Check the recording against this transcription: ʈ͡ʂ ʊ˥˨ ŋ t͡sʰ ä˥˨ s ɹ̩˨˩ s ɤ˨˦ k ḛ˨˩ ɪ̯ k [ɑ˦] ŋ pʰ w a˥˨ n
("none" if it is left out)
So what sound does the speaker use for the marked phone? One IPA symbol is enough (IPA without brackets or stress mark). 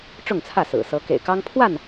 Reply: ɑ˦